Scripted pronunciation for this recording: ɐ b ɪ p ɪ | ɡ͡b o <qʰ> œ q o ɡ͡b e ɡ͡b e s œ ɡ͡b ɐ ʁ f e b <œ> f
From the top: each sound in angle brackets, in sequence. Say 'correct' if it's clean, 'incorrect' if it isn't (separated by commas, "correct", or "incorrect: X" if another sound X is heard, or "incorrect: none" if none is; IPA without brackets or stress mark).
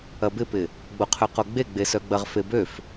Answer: correct, incorrect: ø